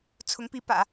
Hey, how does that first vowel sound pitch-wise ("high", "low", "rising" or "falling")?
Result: rising